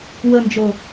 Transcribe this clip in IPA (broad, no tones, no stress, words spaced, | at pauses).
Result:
wənd͡ʒo